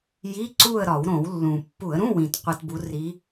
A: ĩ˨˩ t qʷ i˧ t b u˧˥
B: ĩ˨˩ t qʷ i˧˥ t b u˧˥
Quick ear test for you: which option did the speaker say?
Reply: A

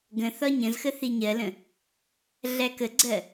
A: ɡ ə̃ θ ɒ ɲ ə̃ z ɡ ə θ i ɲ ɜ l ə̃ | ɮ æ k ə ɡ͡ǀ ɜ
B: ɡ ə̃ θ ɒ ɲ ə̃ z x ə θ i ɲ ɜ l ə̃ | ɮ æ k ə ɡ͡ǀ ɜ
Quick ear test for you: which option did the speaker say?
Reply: B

